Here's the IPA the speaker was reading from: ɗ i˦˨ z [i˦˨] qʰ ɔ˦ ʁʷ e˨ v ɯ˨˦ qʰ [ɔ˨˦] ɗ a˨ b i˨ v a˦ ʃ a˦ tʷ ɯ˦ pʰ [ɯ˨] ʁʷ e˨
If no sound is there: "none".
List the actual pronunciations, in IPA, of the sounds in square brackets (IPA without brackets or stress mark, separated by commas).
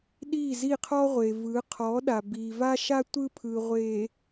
i˦˨, ɔ˨˦, ɯ˨